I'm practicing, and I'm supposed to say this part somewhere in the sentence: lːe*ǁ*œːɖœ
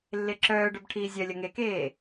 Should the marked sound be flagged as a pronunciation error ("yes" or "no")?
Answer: no